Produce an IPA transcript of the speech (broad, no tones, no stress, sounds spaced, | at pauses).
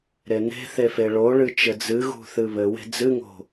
ɾ e n e̤ θ e f e ɭ o ɭ ɨ t͡ʃ ɘ d͡z ɨ ɣ ṳ θ ɨ β ɘ w e̤ d͡z ɨ ŋ o̤